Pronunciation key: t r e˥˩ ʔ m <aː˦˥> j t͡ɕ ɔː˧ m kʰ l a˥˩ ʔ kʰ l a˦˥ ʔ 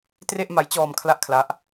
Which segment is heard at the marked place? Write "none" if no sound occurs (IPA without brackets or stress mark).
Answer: a˦˥